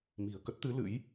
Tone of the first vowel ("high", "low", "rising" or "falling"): low